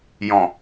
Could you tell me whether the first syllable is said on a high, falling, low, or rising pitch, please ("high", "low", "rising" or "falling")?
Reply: low